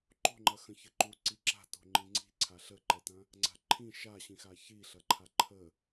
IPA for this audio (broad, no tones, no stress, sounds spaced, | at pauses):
ǃ o̤ ŋ͡ǃ ɐ x ə̃ ç ɘ ǃ u ǀ i ǁ a̤ t o̤ ŋ͡ǃ ĩ ŋ͡ǀ i̤ ǀʰ a ɬ ə ǃ ɛ t ɐ̃ | ŋ͡ǀ a̤ ǃʰ ĩ ʃ a ɕ ĩ x a ç i ɬ ɐ ǃʰ a ǃʰ ə